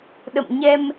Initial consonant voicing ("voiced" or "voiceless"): voiced